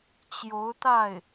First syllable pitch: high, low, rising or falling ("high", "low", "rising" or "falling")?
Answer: rising